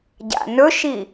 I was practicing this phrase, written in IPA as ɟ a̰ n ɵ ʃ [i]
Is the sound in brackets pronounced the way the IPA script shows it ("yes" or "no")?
yes